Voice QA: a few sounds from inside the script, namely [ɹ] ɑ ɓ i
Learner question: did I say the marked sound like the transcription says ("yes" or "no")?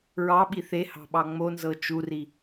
yes